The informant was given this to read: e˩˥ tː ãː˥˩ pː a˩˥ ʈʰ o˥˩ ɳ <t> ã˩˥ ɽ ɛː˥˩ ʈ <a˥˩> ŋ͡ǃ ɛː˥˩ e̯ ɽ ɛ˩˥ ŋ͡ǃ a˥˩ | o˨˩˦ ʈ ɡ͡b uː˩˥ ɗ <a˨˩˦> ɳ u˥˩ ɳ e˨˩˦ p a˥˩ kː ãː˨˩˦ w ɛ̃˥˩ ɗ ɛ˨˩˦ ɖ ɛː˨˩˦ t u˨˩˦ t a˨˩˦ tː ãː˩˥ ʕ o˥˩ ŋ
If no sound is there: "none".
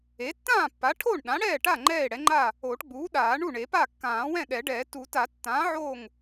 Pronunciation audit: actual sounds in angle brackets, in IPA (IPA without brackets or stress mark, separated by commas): ɗ, a˥˩, aː˨˩˦